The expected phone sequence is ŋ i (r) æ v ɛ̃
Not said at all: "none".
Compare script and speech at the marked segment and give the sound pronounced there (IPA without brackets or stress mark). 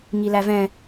l